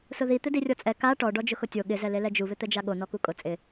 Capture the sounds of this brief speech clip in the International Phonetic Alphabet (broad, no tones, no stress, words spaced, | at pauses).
sʊði t̪ɪdirʲɔt͡sʼɛ ka ʈɔ ɖɔd͡ʒʊxʊtʲo ɠɪ zɛlelɛd͡ʒu βɪt̪ɛd͡ʒaɠo nɔkukʼʊ t͡sʼɪ